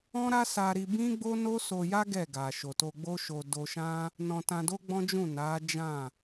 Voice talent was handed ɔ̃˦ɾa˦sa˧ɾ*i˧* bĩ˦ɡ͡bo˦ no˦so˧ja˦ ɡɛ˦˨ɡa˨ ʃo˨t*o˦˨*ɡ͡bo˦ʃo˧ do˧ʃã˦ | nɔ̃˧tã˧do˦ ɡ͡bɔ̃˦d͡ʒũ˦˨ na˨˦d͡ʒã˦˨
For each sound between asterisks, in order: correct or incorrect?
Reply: correct, incorrect: o˧

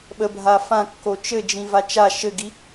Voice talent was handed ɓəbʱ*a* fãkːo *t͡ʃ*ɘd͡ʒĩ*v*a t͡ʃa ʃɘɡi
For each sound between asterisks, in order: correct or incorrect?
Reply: correct, correct, correct

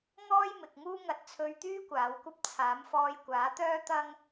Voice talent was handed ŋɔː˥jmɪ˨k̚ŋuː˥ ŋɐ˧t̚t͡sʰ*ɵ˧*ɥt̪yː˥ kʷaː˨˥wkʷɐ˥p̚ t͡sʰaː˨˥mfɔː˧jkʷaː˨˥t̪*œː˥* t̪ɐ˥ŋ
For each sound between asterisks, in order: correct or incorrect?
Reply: correct, correct

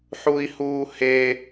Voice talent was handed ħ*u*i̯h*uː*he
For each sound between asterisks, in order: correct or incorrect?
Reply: correct, correct

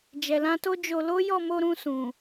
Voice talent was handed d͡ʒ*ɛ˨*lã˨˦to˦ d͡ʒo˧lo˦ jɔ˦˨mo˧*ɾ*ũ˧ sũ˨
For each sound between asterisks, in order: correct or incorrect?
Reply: correct, correct

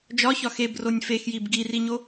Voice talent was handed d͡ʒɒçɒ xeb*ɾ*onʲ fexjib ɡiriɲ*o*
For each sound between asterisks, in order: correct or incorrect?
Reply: incorrect: r, correct

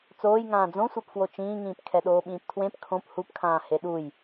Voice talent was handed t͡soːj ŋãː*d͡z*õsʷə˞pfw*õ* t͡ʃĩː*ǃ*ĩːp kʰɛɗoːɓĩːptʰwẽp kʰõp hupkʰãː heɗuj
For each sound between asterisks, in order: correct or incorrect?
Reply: correct, incorrect: o, incorrect: ŋ

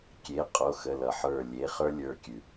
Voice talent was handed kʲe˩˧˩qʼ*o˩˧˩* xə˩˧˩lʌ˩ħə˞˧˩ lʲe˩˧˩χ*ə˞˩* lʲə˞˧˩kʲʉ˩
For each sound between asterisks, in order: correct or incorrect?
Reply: correct, incorrect: ə˞˦

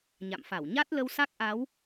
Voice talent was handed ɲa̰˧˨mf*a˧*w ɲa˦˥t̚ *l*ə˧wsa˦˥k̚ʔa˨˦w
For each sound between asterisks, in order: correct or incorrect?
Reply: incorrect: a˧˩, correct

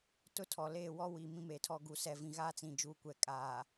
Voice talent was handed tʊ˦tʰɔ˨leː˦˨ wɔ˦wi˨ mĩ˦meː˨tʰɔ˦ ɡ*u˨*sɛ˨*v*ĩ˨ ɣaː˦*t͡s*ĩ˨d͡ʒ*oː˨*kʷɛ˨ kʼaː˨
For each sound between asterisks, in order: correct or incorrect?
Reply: correct, correct, correct, incorrect: uː˨

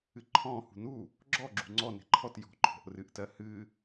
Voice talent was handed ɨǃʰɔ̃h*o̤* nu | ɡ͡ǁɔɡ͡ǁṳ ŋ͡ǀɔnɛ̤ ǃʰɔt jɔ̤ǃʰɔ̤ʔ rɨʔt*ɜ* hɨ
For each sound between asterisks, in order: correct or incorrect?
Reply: incorrect: ṳ, correct

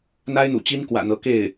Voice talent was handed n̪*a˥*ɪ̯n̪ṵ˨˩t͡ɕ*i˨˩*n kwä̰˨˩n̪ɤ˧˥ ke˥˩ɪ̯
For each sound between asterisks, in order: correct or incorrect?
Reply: correct, incorrect: i˥

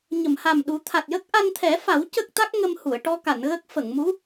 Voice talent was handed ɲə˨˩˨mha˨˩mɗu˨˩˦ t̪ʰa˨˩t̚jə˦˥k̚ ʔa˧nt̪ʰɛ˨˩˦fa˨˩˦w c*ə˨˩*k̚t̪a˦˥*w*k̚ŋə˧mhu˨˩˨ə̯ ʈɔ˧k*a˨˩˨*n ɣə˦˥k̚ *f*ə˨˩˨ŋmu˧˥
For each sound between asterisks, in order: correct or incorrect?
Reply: incorrect: ə˦˥, incorrect: none, correct, correct

